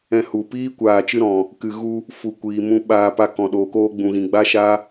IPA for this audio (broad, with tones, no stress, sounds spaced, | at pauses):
ɛ̃˧ h u˨ p iː˦ kʷ aː˨ t͡ʃ ɨ˧ ɾ ɔ̃˨ | k ɨ˨ ɣ u˧ | f u˨ kʷ iː˨ m ũ˧ ɓ aː˧ p a˧ k ɔ̃˨ ɗ oː˨ k oː˧ ɡ͡b ũ˨ ɣ ĩ˨ ɡ͡b a˧ ʃ a˧